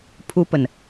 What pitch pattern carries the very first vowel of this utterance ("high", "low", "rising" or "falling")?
high